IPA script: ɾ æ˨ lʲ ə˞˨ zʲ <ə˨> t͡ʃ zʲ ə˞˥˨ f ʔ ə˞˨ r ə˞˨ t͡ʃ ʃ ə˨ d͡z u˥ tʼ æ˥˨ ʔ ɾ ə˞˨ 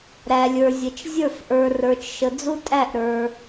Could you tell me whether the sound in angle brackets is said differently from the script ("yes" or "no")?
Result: no